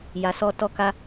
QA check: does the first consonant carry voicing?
yes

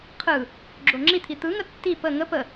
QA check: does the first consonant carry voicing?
no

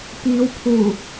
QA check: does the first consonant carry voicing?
no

